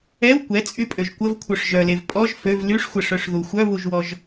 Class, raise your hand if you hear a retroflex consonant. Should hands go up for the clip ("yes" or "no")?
yes